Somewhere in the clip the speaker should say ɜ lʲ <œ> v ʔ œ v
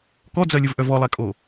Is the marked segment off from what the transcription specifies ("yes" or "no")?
yes